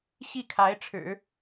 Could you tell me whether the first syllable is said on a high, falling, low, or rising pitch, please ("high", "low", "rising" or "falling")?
falling